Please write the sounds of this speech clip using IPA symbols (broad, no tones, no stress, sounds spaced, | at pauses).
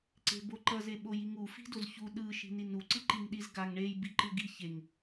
ǀ e̤ b o ǃ ʌ z e ɓ o j i ŋ u f i̤ d o z ç u ɗ ɯ ʃ i̤ n i n u ǀ ɯ ǃ i ŋ ɗ i z ɡ a ŋ ɳ e j b i ǃ ɯ ɡ i ç e ŋ